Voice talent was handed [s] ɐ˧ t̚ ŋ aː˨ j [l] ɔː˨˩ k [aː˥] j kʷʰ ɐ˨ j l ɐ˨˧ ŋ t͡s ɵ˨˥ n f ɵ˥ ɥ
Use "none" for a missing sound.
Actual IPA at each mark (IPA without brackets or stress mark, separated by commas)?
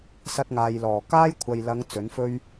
s, l, aː˥